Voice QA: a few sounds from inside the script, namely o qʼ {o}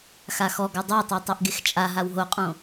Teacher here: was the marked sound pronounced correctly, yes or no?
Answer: no